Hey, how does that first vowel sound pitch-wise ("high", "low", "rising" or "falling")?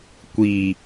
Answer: low